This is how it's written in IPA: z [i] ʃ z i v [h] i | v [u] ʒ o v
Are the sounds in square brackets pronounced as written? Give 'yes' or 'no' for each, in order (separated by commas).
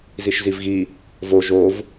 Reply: yes, no, no